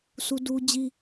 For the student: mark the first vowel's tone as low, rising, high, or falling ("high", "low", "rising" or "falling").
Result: high